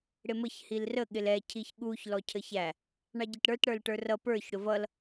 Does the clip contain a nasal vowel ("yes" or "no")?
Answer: no